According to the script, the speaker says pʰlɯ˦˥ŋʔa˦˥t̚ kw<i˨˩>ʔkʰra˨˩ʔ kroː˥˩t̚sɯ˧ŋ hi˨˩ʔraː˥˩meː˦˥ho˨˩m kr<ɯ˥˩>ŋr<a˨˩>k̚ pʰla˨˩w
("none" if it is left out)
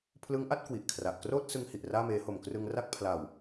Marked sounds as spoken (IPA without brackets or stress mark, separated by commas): i˨˩, ɯ˧, a˥˩